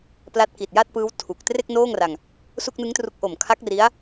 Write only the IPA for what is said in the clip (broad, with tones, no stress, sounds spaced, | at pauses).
p l a˦˥ t̚ k i˨˩ t̚ j a˥˩ t̚ p ɯː˦˥ w tʰ u˨˩ k̚ t r e˥˩ k̚ n oː˥˩ ŋ r a˧ ŋ | s u˥˩ k̚ n ɯ˦˥ ŋ t r u˦˥ k̚ ʔ o˨˩ m kʰ a˦˥ k̚ r i˦˥ a̯